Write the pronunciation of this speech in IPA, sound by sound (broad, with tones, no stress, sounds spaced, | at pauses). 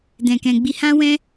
d ɛ̃˨ k ɛ̃˨ ɡ͡b i˧ h ã˦ w ɛ̃˦